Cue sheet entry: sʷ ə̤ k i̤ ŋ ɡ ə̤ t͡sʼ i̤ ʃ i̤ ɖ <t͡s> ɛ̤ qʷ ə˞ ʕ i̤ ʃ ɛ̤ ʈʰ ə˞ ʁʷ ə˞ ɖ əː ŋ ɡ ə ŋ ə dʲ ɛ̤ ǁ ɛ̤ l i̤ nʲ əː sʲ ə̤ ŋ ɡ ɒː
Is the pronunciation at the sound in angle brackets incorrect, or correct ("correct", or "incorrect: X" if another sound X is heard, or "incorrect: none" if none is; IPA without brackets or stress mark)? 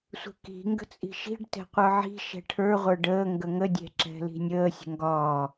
incorrect: t